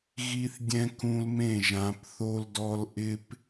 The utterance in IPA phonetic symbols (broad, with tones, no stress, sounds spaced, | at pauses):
ɣ i˦ θ dʲ ɛ̃˦ k ũ˦ l m ẽ˥˩ ʒ ã˨˦ p θ o˦ l d ɔ˦ l ʔ ɪ˦ p